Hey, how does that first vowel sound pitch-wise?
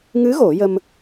rising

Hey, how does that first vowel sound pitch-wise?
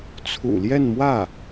low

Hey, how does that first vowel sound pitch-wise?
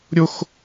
high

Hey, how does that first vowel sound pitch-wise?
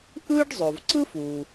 high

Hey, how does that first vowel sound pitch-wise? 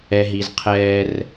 low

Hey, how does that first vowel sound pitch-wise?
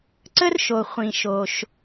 high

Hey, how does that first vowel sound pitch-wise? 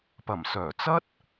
low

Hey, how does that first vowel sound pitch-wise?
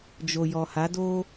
low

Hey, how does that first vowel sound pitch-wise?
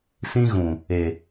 high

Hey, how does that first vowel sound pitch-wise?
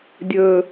low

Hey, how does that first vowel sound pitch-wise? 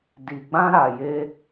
low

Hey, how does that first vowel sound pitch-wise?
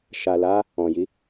low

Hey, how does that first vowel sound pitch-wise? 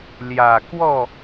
low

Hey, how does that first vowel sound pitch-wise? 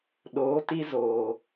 rising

